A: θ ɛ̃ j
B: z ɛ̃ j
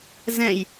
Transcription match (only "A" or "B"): B